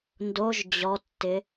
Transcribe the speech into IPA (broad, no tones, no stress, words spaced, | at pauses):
ndoʒ d͡ʑɔtːɪ